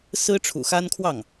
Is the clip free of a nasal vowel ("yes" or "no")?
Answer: yes